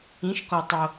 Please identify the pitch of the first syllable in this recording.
rising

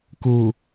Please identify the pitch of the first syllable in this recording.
low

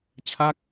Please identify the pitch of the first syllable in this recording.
falling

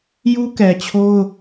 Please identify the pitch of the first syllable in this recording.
high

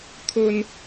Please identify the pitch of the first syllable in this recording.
high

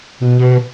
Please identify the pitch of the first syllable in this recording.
high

